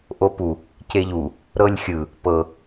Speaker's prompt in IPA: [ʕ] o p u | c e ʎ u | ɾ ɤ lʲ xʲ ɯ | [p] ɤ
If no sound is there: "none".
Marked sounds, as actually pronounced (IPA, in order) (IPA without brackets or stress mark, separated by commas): ʔ, p